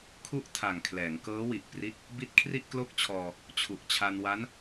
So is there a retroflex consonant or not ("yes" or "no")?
no